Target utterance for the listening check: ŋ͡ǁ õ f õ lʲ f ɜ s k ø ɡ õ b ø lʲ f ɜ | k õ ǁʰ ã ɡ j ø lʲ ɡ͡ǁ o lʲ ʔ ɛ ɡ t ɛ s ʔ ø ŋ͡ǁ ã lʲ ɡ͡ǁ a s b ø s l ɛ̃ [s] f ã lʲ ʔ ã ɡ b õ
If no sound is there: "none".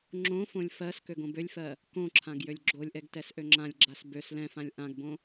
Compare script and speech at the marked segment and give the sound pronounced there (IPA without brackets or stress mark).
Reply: none